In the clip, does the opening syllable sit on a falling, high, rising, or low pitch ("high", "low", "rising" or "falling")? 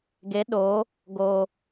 rising